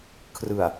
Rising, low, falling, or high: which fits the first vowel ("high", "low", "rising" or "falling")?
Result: low